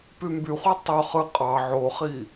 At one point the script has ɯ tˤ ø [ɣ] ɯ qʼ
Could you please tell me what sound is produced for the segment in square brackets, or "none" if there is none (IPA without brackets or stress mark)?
χ